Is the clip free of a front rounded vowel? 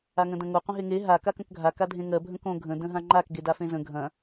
yes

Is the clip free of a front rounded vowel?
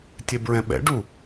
yes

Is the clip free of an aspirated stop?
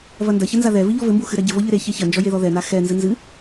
yes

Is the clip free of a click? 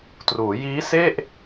yes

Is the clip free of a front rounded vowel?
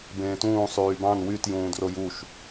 no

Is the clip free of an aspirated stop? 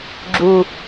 yes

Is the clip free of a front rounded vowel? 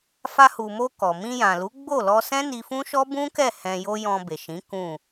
yes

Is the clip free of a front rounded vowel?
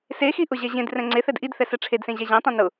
yes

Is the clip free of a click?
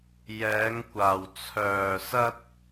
yes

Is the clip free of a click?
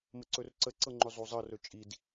no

